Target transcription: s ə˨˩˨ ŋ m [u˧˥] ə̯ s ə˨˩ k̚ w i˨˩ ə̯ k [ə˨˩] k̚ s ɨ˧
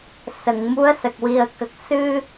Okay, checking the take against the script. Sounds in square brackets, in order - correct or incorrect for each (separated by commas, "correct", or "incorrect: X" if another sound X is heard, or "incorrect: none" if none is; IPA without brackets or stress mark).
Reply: correct, correct